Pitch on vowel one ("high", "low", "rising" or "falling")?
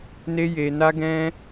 high